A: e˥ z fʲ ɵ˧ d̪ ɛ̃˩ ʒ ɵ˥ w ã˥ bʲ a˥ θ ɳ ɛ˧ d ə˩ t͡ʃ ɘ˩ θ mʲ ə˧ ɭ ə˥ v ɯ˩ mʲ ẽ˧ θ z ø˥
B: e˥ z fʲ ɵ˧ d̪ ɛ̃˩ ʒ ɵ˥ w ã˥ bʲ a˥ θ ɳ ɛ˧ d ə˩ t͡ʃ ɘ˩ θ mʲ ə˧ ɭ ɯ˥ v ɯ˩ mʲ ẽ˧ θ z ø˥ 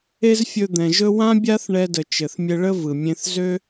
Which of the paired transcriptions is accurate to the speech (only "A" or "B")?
A